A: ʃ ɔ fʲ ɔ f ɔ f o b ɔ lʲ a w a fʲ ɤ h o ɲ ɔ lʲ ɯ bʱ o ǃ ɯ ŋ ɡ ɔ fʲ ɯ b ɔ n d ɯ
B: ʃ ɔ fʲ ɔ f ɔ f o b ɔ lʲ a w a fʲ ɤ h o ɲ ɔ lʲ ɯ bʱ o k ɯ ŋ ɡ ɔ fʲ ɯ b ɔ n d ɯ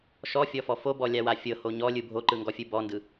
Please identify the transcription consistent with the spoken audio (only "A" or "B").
A